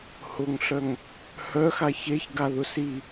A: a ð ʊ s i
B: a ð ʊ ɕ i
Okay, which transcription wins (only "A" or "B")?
A